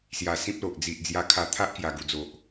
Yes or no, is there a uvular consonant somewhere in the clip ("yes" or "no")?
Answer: no